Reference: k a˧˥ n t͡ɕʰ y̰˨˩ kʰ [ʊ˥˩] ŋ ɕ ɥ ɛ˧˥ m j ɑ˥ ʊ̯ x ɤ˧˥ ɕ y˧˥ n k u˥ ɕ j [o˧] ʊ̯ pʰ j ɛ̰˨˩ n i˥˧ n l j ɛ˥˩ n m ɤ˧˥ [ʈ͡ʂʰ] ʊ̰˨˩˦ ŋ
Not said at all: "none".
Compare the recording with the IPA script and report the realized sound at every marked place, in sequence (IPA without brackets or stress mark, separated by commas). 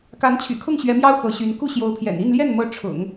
ʊ˥˩, o˧˥, ʈ͡ʂʰ